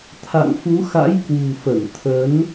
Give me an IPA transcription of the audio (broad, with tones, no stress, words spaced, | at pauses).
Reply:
t̪ʰa̰˧˨ŋfu˨˦xa̰˧˥j kwṳ˨˩fə˧˩n t̪ʰə˨˦n